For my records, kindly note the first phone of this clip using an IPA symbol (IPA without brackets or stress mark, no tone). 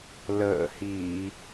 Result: l